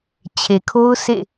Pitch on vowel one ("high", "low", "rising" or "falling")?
low